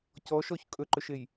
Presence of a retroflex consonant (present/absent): absent